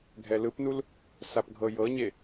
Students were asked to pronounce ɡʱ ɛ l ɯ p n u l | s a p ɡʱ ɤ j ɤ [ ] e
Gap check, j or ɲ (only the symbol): ɲ